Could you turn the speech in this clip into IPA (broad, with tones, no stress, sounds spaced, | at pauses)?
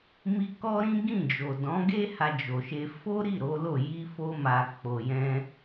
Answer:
m i˦ k ɔ˦ ɾ ĩ˦ ɡ ĩ˦˨ d͡ʒ o˨ d ɔ̃˨˦ ɡ e˦ h a˧ d͡ʒ o˨ ʃ e˧ f o˦ ɾ i˦˨ ɾ o˨˦ l o˦˨ j i˧ f o˧ m a˨ k͡p o˨ j ɛ̃˧